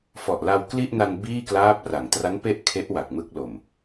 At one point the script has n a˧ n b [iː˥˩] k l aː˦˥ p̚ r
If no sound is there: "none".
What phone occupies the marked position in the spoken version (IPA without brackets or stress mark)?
iː˥˩